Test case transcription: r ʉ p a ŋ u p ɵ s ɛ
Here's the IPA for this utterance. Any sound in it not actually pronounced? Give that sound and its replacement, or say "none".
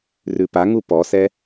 ɵ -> ɔ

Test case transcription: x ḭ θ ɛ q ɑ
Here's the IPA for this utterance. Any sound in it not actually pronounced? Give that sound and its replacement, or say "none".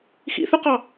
ɛ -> ʏ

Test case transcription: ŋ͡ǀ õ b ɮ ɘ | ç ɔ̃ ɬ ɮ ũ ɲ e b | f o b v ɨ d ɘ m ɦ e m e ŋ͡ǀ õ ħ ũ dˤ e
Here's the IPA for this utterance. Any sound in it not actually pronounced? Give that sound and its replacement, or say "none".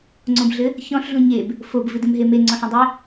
none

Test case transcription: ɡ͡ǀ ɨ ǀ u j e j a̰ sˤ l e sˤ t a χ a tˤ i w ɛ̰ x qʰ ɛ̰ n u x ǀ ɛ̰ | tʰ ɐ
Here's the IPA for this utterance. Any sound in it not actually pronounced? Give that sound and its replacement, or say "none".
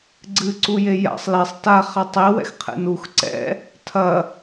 none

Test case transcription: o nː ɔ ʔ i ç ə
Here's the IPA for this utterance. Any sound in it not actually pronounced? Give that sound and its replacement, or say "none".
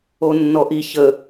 none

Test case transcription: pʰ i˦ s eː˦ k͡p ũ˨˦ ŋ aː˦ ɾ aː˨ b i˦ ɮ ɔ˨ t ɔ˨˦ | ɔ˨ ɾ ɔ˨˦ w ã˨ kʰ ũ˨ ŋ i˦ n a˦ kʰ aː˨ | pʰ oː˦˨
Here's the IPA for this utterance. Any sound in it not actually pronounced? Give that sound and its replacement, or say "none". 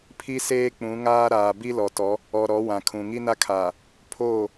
ɮ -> l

